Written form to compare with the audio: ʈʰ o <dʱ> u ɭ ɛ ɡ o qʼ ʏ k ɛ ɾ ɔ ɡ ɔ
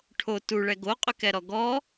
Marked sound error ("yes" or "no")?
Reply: yes